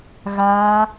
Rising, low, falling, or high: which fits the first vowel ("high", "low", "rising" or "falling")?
high